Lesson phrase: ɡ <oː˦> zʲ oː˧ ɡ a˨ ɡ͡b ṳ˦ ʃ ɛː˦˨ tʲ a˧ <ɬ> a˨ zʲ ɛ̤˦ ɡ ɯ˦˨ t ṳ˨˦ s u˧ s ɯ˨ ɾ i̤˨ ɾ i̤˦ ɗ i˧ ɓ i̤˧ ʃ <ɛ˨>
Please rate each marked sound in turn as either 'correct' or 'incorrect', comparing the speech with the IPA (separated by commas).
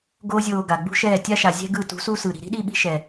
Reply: correct, incorrect, correct